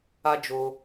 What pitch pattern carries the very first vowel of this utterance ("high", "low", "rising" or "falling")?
high